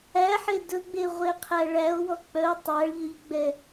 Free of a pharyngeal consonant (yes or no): no